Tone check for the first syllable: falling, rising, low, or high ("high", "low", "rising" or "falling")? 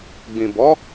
low